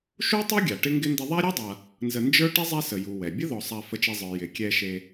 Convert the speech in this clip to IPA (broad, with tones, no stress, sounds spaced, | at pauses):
ʃ u˥ tˤ e˥ ɡʲ a˩ ʈ ɪ˥ ŋ ɡ ɪ˥ n d ɪ˦ ðˤ a˥ ɾʲ u˥ dˤ a˨ | n z ə˨ n d͡ʒ ə˞˥ ʈ ɪ˥ zˤ ɛ˦ s ə˩ j u˩ w ɛ˩ bʲ ə˥ ð ɔ˨ sˤ a˨ f ə˨ t͡ʃ e˨ zˤ ə˞˩ j ɪ˩ kʲ ɛ˨ ʃ e˨